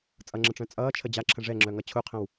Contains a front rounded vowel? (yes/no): yes